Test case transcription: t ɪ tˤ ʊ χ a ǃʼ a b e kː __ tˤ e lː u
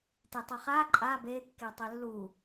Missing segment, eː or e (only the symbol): e